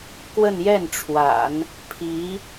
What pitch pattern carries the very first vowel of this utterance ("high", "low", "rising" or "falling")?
falling